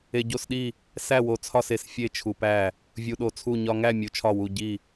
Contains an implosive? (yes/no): yes